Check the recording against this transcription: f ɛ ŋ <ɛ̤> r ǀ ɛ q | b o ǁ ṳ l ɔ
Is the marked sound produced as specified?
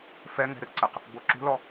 yes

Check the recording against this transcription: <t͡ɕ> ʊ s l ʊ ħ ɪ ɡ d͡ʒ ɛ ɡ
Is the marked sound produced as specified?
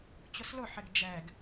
yes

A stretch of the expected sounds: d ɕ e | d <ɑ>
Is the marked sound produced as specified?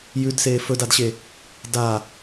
no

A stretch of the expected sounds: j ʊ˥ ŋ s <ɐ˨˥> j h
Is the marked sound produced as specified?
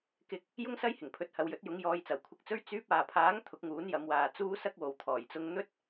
no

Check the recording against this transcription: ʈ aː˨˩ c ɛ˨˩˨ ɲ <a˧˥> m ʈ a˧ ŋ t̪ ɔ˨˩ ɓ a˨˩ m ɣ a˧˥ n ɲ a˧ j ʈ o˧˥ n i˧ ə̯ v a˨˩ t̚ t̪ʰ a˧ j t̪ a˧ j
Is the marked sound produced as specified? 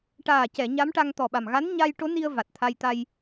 yes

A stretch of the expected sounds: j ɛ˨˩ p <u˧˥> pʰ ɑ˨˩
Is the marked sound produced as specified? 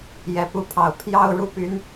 yes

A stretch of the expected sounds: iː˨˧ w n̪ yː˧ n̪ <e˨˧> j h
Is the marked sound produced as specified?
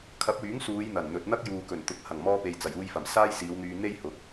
no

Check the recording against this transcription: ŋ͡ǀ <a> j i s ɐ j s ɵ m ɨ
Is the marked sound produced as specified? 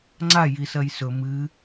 yes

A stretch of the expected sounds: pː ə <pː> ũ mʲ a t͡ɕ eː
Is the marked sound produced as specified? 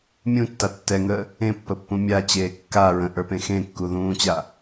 yes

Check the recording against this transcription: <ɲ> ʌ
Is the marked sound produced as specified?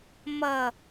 no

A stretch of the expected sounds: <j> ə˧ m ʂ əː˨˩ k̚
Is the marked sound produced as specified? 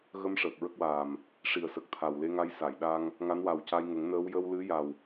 no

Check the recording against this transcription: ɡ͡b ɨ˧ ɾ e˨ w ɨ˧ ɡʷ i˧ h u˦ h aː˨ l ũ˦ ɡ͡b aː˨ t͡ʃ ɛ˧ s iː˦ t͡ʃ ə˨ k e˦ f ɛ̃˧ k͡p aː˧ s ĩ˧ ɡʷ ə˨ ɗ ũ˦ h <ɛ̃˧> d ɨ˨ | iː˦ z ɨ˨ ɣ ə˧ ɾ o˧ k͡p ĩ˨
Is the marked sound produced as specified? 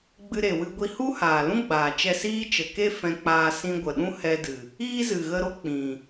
no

